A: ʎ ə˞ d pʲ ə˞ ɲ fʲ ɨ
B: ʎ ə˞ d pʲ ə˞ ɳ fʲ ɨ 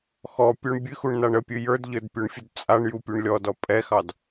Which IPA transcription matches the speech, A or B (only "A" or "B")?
B